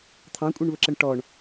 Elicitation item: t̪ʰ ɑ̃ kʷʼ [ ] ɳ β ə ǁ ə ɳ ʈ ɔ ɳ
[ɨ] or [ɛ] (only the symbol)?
ɛ